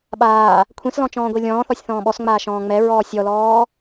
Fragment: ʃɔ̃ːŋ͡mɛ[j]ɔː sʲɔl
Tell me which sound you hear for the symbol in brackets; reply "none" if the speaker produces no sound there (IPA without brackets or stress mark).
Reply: ɹ